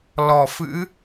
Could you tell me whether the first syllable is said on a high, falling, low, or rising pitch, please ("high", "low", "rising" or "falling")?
low